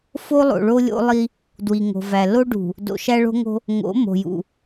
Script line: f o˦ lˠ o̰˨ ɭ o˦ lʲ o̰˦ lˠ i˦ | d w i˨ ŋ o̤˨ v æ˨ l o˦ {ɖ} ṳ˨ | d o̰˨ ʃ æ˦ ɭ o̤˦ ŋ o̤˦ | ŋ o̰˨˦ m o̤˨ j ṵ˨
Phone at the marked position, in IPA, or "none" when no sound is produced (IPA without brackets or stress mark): ɖ